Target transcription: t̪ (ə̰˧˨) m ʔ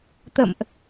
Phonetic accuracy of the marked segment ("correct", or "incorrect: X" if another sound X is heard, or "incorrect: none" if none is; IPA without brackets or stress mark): correct